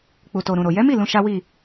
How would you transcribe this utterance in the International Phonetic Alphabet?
k͡pu˨to˨ɾũ˨ɾo˨ jɛ˨˦mi˦˨ lũ˧ʃa˦wi˦˨

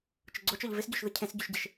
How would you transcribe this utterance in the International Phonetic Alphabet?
t͡ʃʊɡ͡ǀot͡ʃɔʎ vɪsɟoʃðʊ cʰẽsɟuʃɟɪʃ

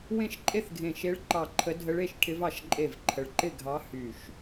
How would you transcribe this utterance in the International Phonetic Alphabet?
wẽ˥˩ʃǃʼe˥˩θɡʱẽ˧˩ ʃe˧˥ɭǃɑ˧˩ ǃʰə˧˥ dʱə˧˥ɭe˥˩ʃʈʰɪ˧˥vɑ˧˩ʃ ǃʼe˥˩vǃʰə˧˩ɭ ǃɪ˥˩ɡʱɑ˧˥ hy˧˩ʃ

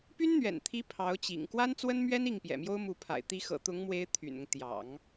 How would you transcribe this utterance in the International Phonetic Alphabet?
py˥nn̪ɥɛ̰˨˩nt̪ʰi˧˥ pʰɑ˧˥ʊ̯ t͡ɕḭ˨˩ŋ kwa˥nt͡swə˥nmɥɛ˥n i˥˩ŋpjɛ̰˨˩mjo˥ʊ̯mu˧˥ pʰa̰˨˩ɪ̯t̪i˧˥ xɤ̰˨˩t̪ʊ˧˥ŋ mwe˥ɪ̯t̪ʰy̰˨˩nʊ˦ŋ t̪jɑ̰˨˩˦ŋ

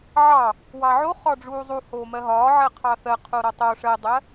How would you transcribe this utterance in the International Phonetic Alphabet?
ʕɑ | wɑʕo χɒɖ͡ʐuːzˤu hoːmɜɦɒː ʕɜqʰɑθɜ qʰoɾɒtˤo ʂɜdˤɜ

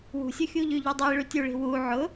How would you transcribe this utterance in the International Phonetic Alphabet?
wṳsʲʊxʲu ʎyʎydˤi ɭytʲuɭi̤ wu ʕʊ

